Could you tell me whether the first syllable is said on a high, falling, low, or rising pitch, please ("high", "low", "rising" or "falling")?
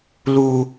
high